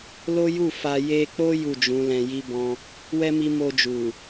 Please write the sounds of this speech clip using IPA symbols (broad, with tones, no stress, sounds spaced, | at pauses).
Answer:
l o˦ j u˦˨ f a˧ j e˧ k͡p o˦ j u˦˨ d͡ʒ ũ˨˦ l ɛ̃˧ j i˦ b ɔ̃˦ | w ɛ˦ m i˧ m o˧ d͡ʒ u˨